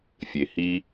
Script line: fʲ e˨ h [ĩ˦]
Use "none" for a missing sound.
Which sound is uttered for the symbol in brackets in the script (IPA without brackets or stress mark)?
i˦